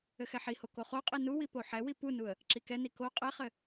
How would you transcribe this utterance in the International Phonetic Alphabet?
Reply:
ɘxɛħiho koχoqʼi nuwi poħɛwi punuə̯ | ǁikɛni ko qʼɛχɘ

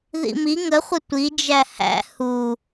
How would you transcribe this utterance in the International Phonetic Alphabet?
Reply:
ðḭmi ŋəχʷə tʷid͡ʒæ hæ̰ hu

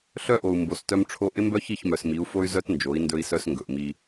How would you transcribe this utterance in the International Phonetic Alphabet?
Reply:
ɬœ˦ʔo˨u̯ mbo˨stœ˦mʈ͡ʂʰo˦ ʔɪ˦mbœ˦çi˦˨ç mœ˨smi˨˦u̯fo˦y̯ zœ˦tnd͡ʒo˨˦i̯ ndɵ˦i̯sœ˦sŋɡɵ˨ʔ mi˦

